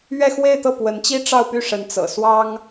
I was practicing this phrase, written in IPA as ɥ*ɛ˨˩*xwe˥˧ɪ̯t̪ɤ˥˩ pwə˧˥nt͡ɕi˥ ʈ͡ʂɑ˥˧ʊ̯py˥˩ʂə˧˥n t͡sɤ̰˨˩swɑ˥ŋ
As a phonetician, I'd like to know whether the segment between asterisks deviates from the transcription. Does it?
yes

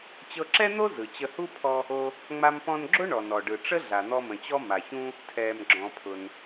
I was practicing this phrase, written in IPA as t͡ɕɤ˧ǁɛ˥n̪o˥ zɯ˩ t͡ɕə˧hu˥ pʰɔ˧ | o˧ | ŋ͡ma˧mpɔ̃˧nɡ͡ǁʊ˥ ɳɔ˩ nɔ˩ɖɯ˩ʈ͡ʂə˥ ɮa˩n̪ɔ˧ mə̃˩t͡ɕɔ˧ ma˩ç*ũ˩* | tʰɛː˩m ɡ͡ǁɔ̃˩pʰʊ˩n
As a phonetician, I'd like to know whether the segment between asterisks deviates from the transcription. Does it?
yes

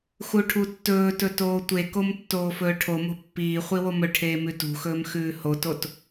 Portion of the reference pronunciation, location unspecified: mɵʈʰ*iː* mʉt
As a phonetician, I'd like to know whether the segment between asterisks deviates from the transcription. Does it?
yes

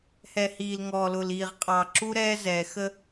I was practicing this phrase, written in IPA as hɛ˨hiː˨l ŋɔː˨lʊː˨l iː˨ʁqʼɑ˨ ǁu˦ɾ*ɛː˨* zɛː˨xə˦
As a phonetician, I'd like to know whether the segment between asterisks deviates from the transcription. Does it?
yes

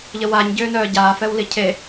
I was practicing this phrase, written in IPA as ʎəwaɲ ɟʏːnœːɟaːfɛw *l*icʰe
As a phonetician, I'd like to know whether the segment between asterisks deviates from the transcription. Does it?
no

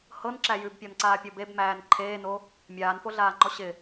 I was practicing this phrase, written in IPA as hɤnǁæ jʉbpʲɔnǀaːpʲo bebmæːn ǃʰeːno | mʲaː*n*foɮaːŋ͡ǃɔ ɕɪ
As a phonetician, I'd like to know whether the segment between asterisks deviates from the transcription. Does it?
no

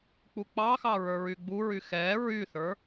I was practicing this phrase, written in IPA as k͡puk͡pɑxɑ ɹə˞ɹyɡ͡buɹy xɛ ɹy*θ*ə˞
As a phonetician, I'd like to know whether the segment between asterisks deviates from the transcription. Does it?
no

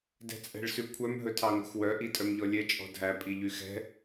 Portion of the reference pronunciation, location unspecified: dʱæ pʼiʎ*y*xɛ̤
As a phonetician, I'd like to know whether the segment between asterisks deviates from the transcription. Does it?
no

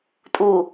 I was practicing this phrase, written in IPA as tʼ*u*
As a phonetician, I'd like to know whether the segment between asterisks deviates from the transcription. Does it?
no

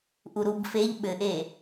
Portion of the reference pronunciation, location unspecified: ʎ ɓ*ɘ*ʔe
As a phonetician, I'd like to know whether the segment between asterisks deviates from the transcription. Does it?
no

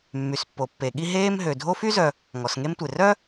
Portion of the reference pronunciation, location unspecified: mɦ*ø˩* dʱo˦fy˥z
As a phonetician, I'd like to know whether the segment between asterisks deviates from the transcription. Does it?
no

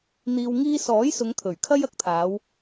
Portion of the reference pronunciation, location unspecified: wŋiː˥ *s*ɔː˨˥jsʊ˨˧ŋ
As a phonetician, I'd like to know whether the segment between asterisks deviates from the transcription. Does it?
no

